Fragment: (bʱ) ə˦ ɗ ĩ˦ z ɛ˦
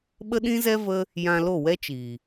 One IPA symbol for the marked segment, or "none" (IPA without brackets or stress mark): ɓ